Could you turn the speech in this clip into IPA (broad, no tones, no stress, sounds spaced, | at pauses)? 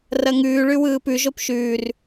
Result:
r ɐ ŋ ʉː ɭ ʉ w ɯː p ʉ ʒ o p ʃ ʉː r